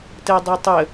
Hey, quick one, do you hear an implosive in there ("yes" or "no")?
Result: no